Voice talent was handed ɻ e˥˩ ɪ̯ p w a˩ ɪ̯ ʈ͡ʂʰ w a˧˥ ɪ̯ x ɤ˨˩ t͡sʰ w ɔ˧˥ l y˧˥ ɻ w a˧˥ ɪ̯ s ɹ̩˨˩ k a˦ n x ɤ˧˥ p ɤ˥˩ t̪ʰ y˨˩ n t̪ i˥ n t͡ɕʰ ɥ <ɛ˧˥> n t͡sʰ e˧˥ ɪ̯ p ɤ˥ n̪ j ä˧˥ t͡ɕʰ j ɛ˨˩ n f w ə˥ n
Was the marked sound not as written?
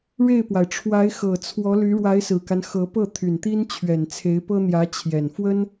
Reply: yes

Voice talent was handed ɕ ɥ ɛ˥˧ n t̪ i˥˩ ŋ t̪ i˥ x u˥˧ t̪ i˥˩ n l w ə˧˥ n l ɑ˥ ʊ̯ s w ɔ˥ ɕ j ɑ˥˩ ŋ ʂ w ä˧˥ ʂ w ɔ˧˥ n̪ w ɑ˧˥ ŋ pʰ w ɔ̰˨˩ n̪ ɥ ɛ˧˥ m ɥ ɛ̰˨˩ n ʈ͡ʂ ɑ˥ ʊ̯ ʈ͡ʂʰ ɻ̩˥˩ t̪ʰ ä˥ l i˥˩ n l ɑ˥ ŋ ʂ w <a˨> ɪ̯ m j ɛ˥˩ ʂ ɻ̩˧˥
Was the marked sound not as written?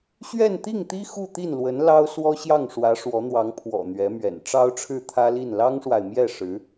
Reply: no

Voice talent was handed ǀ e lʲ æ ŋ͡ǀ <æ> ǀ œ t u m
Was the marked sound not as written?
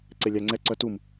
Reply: yes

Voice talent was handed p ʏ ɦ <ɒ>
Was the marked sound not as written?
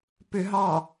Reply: yes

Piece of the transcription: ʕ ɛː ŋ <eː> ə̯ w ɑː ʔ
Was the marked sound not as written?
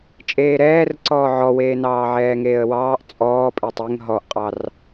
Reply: no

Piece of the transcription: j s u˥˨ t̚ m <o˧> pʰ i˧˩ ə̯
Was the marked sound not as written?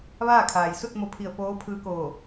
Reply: no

